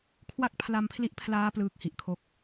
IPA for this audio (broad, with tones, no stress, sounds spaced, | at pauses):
kʰ w a˥˩ k̚ pʰ l a˧ m pʰ l i˦˥ ʔ pʰ l aː˦˥ p l ɯː˦˥ k̚ h i˨˩ ʔ kʰ o˥˩ k̚